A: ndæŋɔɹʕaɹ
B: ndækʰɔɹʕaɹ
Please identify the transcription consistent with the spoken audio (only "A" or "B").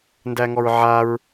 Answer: A